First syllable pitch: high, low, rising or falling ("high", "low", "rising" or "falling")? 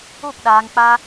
falling